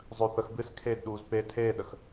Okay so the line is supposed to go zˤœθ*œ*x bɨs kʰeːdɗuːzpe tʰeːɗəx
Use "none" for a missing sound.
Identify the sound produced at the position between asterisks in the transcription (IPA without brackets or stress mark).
ə